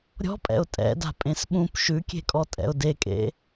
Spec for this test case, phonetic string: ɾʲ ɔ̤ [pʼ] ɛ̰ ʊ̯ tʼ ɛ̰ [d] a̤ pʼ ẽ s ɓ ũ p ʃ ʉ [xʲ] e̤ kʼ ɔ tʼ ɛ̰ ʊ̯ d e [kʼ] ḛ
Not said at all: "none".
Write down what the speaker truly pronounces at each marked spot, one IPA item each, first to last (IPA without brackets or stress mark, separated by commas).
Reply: pʼ, d, kʲ, kʼ